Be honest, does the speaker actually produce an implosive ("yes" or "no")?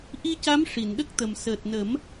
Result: yes